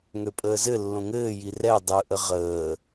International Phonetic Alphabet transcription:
ŋøpʼəːzɘlːõ ŋɘːji rɛ dˤɯʔə ʁəː

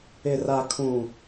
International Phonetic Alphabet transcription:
ɪ˨ra˨kʰũ˨

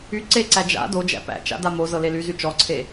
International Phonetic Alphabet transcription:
y ǀeǀæ d͡ʒa̰ dod͡ʒæ̰ pæ̰t͡ʃa̰da mozɤle lyzy t͡ʃɔǀʰe

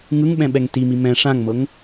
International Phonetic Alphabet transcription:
ŋɯŋɓɛ̃ɓɛŋ timi mɛ̃ ʂãŋmɤŋ

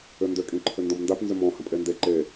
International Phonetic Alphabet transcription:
ʏndʏ kʼĩǃʰʏndɔ̃mndap nzʏmɔ̃ hə̃pʼende ǃe

